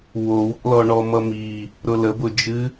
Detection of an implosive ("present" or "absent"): absent